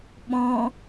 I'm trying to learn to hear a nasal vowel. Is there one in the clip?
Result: yes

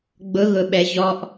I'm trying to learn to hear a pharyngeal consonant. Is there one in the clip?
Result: no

